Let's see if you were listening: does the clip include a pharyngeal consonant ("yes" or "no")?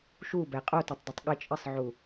yes